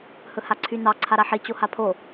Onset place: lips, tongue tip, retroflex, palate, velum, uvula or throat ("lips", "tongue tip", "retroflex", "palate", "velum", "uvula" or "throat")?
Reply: throat